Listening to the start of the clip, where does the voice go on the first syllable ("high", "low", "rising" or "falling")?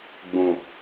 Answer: low